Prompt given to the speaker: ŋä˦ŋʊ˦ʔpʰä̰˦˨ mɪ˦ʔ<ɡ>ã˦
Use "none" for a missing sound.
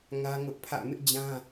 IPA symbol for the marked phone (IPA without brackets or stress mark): d͡ʑ